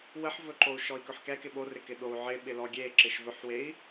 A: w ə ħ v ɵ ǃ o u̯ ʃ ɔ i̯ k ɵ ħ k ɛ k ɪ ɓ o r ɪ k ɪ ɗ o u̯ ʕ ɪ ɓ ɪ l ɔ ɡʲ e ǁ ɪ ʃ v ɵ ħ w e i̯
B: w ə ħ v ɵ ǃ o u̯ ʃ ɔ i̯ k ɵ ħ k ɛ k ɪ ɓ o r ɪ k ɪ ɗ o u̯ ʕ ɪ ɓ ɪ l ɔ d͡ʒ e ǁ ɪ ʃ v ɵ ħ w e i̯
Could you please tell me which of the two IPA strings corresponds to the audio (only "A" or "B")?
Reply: A